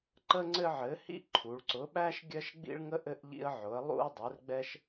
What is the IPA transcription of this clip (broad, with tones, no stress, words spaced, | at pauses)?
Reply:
ǃə˦ŋ͡ǀɘ˦ʕɘ˨˦hḭ˦ ǃʰu˨˦ɭ ǀʊ˨˦ɓæ˦ʃ ɡʲɜ˦ʃɡ͡bḭ˦ɭŋə˦ʔ ɘ˦ʔʎḭ˦ə̯ʕʊ˨˦ə̯ lˠṵ˦ə̯dˤɘ˨˦rɡ͡bɛ˦ʃ